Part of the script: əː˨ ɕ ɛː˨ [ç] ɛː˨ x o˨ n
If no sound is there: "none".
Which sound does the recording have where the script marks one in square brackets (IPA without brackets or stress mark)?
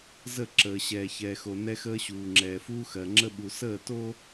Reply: ç